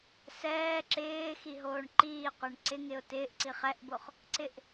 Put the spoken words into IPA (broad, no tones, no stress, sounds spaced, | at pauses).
s ɛː ǁ ɪː x i ɦ oː ɳ ǃ iː qʷ ɛ ɳ ǀ ɪ ŋ ɪ ʊ̯ t ɪː ʔ ǀ i χ ɛ ʔ b o χ | ǀ ɪ ʔ